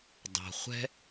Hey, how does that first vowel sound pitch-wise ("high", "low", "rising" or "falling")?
low